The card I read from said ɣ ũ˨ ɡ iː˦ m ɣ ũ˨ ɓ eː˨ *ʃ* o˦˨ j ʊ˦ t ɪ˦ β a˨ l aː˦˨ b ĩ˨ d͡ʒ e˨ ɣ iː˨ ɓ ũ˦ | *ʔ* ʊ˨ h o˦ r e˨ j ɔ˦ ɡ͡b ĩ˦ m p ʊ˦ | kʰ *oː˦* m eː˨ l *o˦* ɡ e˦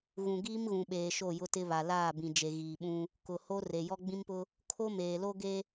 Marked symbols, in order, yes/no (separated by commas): yes, no, no, yes